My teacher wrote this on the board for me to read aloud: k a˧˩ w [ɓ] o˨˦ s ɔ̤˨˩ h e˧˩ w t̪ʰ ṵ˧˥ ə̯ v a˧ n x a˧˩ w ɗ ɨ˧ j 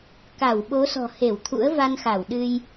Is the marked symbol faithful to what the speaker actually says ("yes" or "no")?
yes